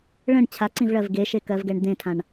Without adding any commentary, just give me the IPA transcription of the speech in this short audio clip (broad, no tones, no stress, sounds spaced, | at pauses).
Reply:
ɭ ə̃ ɳ t͡ɕʰ a ǀ ĩ v ɭ ɜ v ɡ e ʃ e k ɜ v ɡ ɛ ɳ d̪ ẽ tʰ ã ɳ